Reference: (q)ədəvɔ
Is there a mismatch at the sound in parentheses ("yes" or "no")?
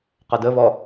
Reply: no